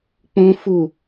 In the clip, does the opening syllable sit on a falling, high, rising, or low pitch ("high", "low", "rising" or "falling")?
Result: high